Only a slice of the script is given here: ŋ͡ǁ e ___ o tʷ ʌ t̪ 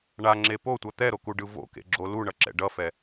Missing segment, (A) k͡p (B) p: B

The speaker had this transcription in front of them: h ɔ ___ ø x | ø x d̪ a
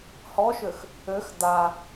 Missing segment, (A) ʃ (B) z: A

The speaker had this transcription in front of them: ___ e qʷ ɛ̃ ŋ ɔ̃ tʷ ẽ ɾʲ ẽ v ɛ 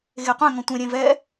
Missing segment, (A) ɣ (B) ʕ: A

